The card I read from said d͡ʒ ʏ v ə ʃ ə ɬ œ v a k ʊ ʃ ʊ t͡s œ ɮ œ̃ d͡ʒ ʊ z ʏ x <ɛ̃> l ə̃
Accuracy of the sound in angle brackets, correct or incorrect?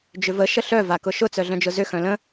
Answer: incorrect